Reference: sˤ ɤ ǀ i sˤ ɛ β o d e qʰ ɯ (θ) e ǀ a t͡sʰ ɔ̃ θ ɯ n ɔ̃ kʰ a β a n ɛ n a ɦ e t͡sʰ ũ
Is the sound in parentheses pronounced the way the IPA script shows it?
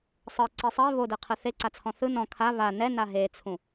yes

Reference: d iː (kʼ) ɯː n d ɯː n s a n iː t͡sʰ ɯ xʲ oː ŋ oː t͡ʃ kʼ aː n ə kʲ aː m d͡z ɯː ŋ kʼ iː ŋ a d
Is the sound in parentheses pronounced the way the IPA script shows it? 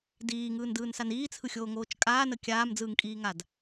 no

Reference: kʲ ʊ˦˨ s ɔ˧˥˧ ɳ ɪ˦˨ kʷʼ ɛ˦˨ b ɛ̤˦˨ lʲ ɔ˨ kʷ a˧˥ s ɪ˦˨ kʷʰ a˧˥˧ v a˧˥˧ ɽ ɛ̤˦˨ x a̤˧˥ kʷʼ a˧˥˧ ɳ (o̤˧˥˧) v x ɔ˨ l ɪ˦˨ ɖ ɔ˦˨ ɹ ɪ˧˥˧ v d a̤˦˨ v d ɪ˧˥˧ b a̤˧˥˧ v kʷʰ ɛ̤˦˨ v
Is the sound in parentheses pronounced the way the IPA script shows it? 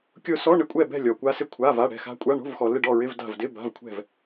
yes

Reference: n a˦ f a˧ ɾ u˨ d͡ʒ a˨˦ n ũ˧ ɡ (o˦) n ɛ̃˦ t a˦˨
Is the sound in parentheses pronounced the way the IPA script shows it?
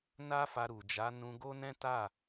yes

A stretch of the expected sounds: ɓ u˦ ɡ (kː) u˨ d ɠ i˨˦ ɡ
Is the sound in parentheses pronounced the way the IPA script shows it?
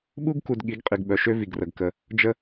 no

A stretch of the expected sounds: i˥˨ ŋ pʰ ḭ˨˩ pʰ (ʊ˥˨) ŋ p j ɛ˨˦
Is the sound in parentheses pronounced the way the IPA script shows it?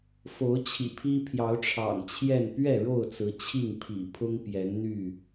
no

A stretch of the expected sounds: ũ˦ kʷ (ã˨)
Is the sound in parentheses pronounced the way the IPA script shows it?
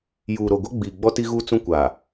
no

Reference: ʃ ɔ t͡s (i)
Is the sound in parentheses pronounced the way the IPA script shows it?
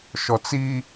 yes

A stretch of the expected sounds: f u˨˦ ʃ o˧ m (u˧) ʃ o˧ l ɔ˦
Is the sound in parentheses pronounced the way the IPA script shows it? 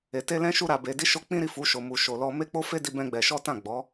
yes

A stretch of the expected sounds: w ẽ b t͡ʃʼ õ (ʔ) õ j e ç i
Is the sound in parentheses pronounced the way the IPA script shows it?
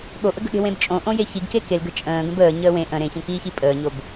yes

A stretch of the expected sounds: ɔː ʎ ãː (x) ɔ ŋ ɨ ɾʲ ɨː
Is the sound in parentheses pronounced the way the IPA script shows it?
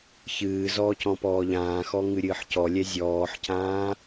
yes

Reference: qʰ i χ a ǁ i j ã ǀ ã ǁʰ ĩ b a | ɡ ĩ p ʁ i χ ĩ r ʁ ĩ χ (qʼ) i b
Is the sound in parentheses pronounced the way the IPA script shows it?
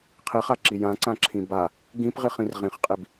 yes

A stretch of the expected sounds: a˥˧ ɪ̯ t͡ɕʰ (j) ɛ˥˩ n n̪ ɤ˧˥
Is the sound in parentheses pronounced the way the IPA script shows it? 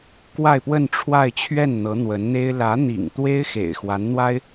no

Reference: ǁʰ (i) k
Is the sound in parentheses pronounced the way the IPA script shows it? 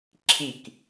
yes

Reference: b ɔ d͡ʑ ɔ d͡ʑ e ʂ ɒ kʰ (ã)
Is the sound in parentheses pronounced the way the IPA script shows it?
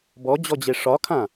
yes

